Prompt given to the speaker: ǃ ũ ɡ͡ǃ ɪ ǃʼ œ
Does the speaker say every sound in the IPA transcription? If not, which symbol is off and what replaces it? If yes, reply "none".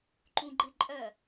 none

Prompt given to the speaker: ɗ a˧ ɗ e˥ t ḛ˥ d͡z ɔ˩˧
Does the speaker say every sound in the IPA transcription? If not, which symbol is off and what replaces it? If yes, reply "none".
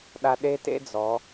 none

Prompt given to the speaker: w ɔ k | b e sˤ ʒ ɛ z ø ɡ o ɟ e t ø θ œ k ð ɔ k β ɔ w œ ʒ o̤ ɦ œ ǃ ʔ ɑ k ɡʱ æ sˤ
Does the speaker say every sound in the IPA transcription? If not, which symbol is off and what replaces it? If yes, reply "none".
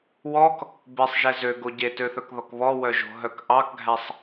ǃ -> k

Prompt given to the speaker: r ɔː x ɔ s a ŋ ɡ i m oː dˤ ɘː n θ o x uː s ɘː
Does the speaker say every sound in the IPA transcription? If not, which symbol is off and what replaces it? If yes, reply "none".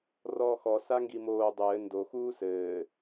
θ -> d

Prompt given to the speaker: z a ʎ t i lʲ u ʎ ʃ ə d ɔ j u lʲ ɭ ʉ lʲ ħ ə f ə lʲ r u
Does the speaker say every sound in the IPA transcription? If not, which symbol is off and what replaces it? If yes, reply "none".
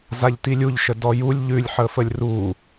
ɭ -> ʎ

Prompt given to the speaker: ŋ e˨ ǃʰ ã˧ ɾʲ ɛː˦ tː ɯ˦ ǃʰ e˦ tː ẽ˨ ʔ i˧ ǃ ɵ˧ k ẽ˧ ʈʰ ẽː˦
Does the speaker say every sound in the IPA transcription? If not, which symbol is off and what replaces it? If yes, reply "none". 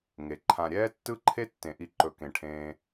none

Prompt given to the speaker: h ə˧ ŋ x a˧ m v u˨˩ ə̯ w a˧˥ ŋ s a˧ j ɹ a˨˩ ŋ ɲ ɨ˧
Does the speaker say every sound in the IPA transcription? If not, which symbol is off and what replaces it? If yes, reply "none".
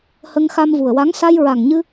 none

